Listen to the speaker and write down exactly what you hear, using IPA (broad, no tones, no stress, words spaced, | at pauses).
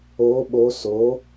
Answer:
o ɓo so